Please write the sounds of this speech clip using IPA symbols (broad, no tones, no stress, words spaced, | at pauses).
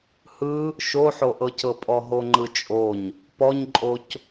hɯ | ʃoħoʔɤcɤ pʼɔɦoŋ͡ǃɯt͡ʃʼoɲ | pɔɲǃʼoc